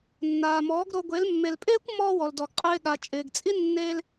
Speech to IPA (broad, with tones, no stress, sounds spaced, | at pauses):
nː aː˨ m ɔː˨˦ ɡ ɾ o˧ ɡʷ e˨˦ l mː e˨ l pʼ ɪː˦ kʷ m ɔː˧ w ɔ˨ l d ɔ˨ ɡ qʼ ɪː˧ ɠ a˨ t͡ʃʼ ɪː˨ ɡ t͡sʼ i˦ nː e˧ l